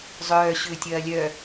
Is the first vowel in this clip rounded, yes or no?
yes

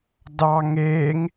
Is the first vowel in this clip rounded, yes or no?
no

